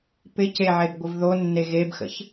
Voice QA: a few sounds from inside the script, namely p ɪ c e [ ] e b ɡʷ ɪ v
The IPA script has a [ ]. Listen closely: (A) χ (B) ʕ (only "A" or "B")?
B